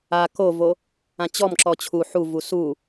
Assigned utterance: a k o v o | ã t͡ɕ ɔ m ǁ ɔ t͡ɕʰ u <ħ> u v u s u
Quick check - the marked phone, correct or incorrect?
correct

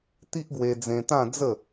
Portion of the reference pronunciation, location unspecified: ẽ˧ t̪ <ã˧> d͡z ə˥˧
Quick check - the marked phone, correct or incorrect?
incorrect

